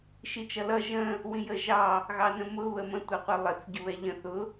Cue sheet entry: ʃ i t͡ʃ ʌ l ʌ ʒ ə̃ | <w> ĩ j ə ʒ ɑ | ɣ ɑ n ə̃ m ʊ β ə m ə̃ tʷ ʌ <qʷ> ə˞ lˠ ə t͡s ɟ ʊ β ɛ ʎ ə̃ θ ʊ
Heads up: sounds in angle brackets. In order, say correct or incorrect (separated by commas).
correct, correct